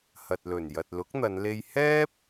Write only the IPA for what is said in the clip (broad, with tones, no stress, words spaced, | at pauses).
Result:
hɐ˨t̚lɵ˨˩n jɐ˨t̚lʊ˨˥k̚n̪ɐ˨˧nle˧j hɛː˥p̚